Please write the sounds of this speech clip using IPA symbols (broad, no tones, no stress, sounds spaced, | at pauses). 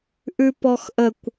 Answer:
ʔ ʉ p ɔ x ʔ ə kʷ